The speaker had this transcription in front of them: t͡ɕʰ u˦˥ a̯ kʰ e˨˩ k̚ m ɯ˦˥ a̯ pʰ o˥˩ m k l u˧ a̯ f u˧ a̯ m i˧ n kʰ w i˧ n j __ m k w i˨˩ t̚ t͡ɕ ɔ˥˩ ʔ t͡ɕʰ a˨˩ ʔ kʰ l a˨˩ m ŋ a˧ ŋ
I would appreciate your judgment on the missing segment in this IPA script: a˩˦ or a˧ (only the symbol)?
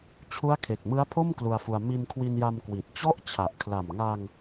a˧